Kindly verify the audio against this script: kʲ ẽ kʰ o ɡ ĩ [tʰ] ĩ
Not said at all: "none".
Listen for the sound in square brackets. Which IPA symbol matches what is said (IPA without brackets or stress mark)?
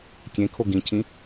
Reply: cʰ